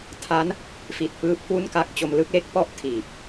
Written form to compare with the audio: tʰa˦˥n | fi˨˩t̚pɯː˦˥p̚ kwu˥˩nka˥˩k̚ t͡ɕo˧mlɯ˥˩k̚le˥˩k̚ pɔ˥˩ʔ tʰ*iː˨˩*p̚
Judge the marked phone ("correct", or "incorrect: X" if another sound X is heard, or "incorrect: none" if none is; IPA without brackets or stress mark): correct